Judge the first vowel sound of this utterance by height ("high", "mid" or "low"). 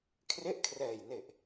mid